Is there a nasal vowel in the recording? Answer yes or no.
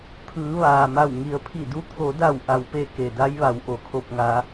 no